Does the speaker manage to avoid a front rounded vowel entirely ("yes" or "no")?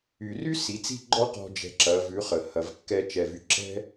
no